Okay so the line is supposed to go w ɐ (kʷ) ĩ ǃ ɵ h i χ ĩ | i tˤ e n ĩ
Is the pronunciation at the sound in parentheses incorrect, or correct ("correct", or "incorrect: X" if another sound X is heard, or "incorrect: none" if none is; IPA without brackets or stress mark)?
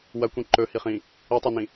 correct